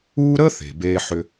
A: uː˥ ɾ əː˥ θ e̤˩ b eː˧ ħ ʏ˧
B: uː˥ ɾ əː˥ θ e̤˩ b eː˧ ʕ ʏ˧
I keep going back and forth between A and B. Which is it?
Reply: A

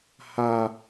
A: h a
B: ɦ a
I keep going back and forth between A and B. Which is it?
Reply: A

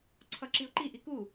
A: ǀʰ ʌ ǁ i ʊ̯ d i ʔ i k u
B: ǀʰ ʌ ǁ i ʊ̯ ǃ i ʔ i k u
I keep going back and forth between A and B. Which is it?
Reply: B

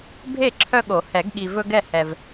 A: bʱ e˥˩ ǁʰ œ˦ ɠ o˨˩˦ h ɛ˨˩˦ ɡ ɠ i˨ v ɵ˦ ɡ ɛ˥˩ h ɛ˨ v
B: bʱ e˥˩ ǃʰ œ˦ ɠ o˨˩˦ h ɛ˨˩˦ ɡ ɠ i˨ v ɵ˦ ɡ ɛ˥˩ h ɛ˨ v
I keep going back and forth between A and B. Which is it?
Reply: A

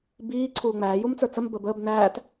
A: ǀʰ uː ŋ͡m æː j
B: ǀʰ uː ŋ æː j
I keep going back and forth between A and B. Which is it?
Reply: A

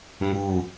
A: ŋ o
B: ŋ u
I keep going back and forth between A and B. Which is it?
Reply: B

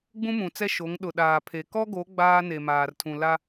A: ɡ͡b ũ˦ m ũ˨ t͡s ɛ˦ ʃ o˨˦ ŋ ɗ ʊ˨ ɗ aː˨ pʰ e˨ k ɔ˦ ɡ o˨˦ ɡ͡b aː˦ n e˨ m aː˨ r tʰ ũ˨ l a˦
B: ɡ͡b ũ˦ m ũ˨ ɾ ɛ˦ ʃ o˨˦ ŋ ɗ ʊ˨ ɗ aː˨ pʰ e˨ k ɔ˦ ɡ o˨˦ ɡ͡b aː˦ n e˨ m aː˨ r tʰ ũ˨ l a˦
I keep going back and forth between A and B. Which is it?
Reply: A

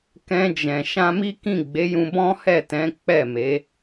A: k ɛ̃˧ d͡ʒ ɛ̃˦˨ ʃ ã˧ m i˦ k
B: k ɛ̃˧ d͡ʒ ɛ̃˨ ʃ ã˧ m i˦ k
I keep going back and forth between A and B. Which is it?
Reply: B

